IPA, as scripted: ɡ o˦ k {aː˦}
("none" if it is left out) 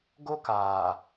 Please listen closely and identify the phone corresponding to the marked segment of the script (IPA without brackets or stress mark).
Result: aː˨